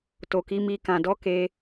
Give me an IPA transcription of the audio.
t o˨ k i˨˦ m i˧ k ã˨ d ɔ˨˦ k e˧

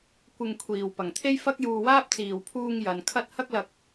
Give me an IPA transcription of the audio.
kʷ ɪ˧ ŋ kʷʰ iː˨ w p ɐ˨ ŋ t̪ʰ e˥ j f ɐ˥ k̚ j uː˧ w aː˥ p̚ t͡s iː˨ w pʰ uː˧ ŋ j ɐ˨˧ n kʰ ɐ˥ t̚ h ɐ˥ k̚ l ɐ˧ k̚

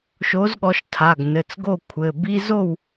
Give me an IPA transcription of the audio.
ʃ o˨˦ z ɠ ɔ˨˦ ʃ tʰ a˩˧˩ ɡ n ɘ˩˧˩ t͡s ɡ o˥˨ kʷʰ ɘ˩˧˩ b i˦ z o˥˨ w

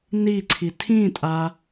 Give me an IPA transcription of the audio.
n i ǀʰ i tʰ ĩ tʼ a

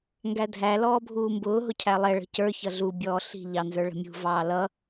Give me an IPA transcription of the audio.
ŋ ɡ æ dʱ æ l ɔː bʱ uː m b ʊː ɦ ʊ cʰ æ lˠ ɛ ɭ ə̤ c ə˞ ç ʌ ɮ u bʲ ɔː ɬ i̤ ʎ ɑ n z ə˞ ɭ ə̤ mʲ ṳ v ɑː l ʌ

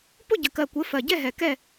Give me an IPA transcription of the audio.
p ʊ˥˨ ɟ ə˨˩ k ɜ˨˩ kʷ ɘ˨˥ f ɜ˨˩ ɟ ɛ˥˨ ɦ ɛ˨˩ k ɛ˥˨

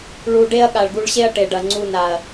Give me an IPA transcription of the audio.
ɭ u˧ ɖ e˦ ɐ̯ ɠ a˨ ɭ ɡ u˧ ɭ ɕ e˦ ɐ̯ ʈ e˨ ɖ ɐ˨ ŋ͡ǀ u˧ n a˨ ɐ̯

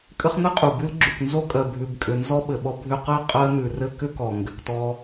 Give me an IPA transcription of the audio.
kʼ ɘ˦ χ n̪ ɘ˥ qʼ u˩ b ʉ˦ l ɡ͡ǁ ʉ˩ k n z o˥ kʼ ɜ˩ bʱ ʉ˨ b kʼ ʏ˨ n z ɔ˥ ɓ ɘ˩ ɓ ɔ˦ bʱ ʏ˦ q ɜ˥ qʼ ɜ˦ n̪ ʉ˩ r ɘ˦ k ʏ˥ k ɔ˩ ŋ ɡ ʏ˨ k t ɔ˦

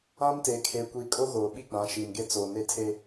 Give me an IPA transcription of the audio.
ã˦ m t e˨ kʰ e˨ kʷ i˨ kʼ o˦ ɣ oː˨ ɓ i˦ ɡ͡b ã˨˦ ʃ iː˨ n ɡ e˦ t͡s oː˨ n e˦ tʰ e˦

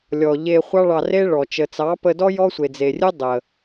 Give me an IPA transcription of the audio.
lʲ ɔ˨ ʎ e˧ χʷ ɑ˦ ɭ ɑ˧ r e˦ ɭ ɔ˨ t͡ʃ ə˨ t͡s ɑ˨˦ p ə˧ d ɔ˦ j ɔ˦ sʷ e˨ d͡z e˨ rʲ ɨ˦ dˤ ə˨

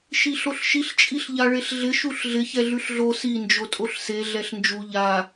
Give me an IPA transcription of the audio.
ʃ i ɬ o ɬ ʃ i ɬ t͡ʃʼ i ɬ ʎ a ɭ e ɬ ɮ ɪ ʃ u ɬ ɮ ɪ ç ɛ ɮ ʉ ɬ ɮ o s i n d͡ʒ o tʼ o ɬ s e ɮ ɛ ɬ n d͡ʒ u ʎ a

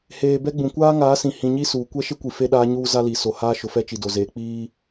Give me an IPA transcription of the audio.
h eː˨ b ɛ˦ ɡ͡b ũ˨ kʷ aː˦ ŋ aː˨˦ s ĩ˨ h ĩ˨ ɲ i˦ s uː˨ kʷ ɛ˦ ʃ ɪ˦ kʷ i˨ f e˦ ɗ aː˦ ɲ uː˦ z a˦ l i˨ s o˨ h aː˦ ʃ ʊ˨ f ɛ˦ t͡ʃ i˨ d o˨ z eː˨ k͡p iː˦

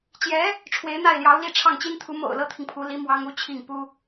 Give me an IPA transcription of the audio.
t͡ɕ j ɛ˧˥ | ʈ͡ʂʰ w e˧˥ ɪ̯ n̪ a˥˩ ɪ̯ l j ɑ˧˥ ʊ̯ l i˥˧ ʈ͡ʂʰ ɑ˥˩ ŋ t͡ɕ i˥ n t̪ʰ u˧˥ m o̰˨˩ ʊ̯ l ɤ˥ t̪ʰ i˨ ŋ pʰ u˧˥ l i˧˥ m w ɑ˥ ŋ u˧˥ t͡ɕʰ i˥˩ ŋ p u˥

